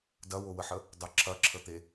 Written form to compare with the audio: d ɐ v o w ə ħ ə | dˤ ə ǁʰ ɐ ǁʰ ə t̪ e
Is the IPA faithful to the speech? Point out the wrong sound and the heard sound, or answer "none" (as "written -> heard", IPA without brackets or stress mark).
v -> w